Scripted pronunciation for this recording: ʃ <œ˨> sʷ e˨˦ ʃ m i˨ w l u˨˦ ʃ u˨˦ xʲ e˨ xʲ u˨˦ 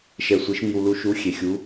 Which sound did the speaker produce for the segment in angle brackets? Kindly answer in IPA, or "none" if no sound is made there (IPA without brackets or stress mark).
ɛ˨